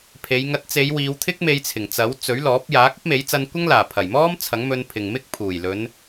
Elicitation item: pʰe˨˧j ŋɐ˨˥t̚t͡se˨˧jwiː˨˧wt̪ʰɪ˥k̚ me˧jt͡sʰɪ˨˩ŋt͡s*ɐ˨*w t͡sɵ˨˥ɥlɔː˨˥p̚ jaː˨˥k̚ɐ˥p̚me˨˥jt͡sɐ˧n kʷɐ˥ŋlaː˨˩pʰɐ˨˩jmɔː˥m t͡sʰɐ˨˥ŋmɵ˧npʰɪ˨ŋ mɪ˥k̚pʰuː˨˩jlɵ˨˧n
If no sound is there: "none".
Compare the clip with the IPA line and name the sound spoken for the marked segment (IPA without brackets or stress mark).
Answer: ɐ˨˥